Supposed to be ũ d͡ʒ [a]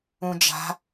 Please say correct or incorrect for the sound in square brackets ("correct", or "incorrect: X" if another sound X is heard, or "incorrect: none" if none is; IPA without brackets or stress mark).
incorrect: a̤